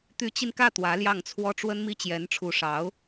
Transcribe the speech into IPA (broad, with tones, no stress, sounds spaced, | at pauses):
t̪ y˧˥ t͡ɕ i˧ n k ä˥˩ t̪ w ä˧˥ l j ɑ˥˩ ŋ t͡sʰ w ɔ˥ ʈ͡ʂ w ə˥ n m i˥ t͡ɕ j ɛ˧˥ n ʈ͡ʂʰ u˧˥ ʂ ɑ˧˥ ʊ̯